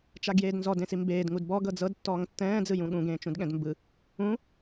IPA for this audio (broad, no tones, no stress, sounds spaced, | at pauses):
t͡ʃ a ɡ j eː d n z ɔ d ẽ s i m b eː d ŋ u d b ɔ ɡ ɤ d͡z ɤ d tː ɔː ŋ tː ɛ̃ː d͡z ɯ j ũ ɠ ũ ɡ ẽː t͡ʃ ũ d ɠ ɛ̃ d m b ɯ | ũ